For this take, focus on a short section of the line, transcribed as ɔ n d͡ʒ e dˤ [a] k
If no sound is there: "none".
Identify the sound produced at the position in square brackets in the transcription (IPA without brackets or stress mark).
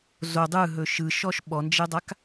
a